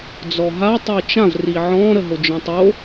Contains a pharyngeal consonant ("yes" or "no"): yes